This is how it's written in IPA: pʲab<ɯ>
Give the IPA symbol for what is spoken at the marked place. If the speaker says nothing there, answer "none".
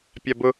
ʊ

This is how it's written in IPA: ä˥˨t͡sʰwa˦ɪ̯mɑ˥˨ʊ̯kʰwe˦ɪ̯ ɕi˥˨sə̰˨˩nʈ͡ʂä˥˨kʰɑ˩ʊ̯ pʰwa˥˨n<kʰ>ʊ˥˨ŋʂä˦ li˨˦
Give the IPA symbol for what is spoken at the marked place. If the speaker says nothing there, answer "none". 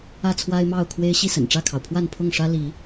pʰ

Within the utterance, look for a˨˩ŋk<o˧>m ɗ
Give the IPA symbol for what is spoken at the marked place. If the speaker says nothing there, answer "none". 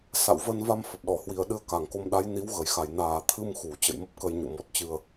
o˧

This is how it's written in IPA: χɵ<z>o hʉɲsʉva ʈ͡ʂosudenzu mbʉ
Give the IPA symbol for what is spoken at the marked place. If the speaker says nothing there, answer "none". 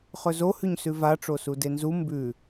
z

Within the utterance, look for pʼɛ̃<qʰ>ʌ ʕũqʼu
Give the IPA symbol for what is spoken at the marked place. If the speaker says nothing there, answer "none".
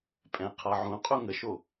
qʰ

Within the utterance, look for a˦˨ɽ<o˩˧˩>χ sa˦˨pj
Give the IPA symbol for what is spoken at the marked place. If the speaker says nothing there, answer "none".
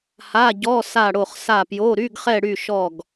o˦˨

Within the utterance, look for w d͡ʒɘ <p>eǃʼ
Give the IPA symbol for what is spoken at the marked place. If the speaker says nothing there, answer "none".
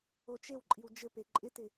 p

